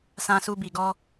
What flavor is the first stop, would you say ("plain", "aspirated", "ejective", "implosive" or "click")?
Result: plain